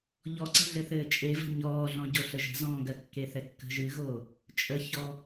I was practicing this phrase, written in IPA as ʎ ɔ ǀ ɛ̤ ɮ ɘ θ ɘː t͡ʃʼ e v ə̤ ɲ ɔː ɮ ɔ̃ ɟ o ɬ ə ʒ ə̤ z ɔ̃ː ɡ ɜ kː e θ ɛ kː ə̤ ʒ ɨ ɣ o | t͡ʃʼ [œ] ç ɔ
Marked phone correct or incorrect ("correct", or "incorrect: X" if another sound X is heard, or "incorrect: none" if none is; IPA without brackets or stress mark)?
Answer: incorrect: ə